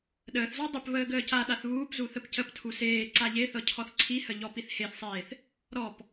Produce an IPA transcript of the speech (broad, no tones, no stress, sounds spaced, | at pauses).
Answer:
ɗ əː θ z ɔ dˤ ə p β əː ɡ əː c a ɗ a θ β uː p z u θ ə p c ə p tʰ u s eː ǀ a ʎ e θ ɤ cʰ ɔ θ ǀʰ i h ə ʎ ɔ p i θ h e θ sˤ eː θ | ɾ ɔ p